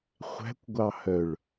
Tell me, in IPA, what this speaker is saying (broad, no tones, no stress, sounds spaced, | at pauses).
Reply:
χʷ æ̤ kʷ ɡʷ ɑ h œ ɭ